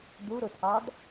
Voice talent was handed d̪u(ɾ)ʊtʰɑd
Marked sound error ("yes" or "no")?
no